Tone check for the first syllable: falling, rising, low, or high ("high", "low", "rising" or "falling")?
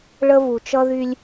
high